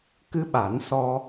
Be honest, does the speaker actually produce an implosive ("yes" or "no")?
yes